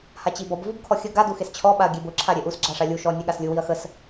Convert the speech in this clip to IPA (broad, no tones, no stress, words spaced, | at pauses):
hat͡ɕibɔb vubkʰɔxʲə ɡa duxest͡ɕʰɔ ɓaɐ̯ɡʲebʊ ǁʰaɾʲeʔus ɡ͡ǁaʂalʲu ʃɔ nʲeɠaslʲu wiɐ̯xəs